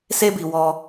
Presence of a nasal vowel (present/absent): absent